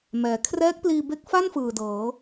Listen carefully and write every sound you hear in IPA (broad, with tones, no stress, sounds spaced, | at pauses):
m ɛː˩˦ kʰ r ɛː˦˥ k̚ p l iː˧ b e˦˥ k̚ f a˥˩ n f ɯː˨˩ d ɤː˩˦